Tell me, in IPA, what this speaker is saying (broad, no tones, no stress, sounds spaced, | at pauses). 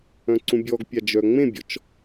œ̃ ǀ ũ bʲ ɔ ɡ pʲ a d͡ʒ œ ŋ͡m ẽ bʲ ɔ̰ t͡ʃ